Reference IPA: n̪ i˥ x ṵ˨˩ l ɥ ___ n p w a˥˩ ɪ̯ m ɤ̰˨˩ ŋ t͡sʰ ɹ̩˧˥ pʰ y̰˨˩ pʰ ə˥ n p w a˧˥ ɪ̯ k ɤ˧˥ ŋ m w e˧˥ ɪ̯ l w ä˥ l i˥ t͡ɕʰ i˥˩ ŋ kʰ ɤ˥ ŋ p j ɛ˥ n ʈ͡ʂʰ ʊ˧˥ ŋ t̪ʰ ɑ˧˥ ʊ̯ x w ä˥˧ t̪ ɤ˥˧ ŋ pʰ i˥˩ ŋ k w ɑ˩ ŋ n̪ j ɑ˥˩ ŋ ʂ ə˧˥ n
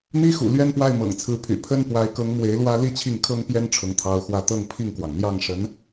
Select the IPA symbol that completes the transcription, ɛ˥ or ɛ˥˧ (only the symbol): ɛ˥˧